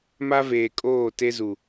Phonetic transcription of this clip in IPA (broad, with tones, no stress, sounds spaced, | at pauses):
m a˦ v eː˨ kʼ oː˦˨ t e˦ z u˨